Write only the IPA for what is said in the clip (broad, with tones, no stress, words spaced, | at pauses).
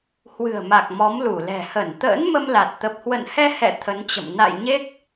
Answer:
hwɨ̤˨˩ə̯ma˨˩k̚ mɔ˨˦mlu˧˩lɛ̤˨˩ hə˧˩nt̪ə̰ː˧˥nmə˧mla˨˩t̚ t̪ə˨˩p̚hwə̰˧˨nhɛ˧hɛ̰˧˨ t̪ʰə˨˦nt͡ɕə̰˧˨m na̰˧˨j ɲe˦˥k̚